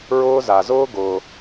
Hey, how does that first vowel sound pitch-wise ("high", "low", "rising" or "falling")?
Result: high